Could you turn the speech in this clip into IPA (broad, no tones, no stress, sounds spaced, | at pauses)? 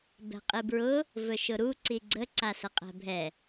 b ɛ̤ qʼ i b ɹ ʊ | v ɵ ʃ ʊ ɾ u ǀ i ɡ͡ǀ ə ǀ a s ə qʼ ɛ̤ bʱ ɛ